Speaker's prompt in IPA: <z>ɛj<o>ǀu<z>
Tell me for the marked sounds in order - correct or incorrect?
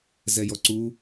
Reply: correct, incorrect: ɔ, incorrect: none

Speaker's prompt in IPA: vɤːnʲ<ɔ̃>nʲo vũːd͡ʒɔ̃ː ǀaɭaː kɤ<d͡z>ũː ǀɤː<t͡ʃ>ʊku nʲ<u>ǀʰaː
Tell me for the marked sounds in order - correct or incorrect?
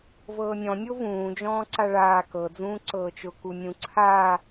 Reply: correct, correct, correct, incorrect: ũ

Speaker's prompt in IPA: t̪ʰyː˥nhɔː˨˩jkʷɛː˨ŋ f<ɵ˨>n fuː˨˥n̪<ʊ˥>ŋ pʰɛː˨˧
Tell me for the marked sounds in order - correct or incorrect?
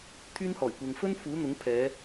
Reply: incorrect: ɵ˥, incorrect: ʊ˨˥

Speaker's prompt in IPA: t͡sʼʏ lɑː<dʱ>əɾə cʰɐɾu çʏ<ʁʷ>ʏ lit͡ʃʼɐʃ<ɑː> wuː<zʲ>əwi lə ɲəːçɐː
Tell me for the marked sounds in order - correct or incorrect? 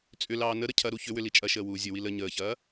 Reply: incorrect: n, incorrect: w, incorrect: əː, correct

